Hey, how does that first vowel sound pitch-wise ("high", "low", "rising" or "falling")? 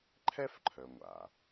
high